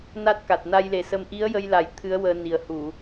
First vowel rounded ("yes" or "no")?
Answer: no